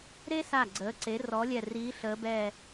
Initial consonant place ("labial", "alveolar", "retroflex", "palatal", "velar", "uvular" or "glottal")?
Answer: alveolar